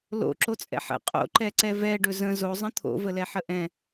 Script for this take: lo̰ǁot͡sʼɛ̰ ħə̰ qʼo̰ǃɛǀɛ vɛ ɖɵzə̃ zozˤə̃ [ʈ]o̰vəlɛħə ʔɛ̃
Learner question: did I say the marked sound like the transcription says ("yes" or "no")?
no